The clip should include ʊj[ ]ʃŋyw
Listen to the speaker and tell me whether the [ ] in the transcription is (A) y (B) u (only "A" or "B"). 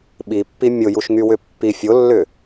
B